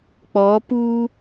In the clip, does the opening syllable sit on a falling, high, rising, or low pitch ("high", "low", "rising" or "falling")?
rising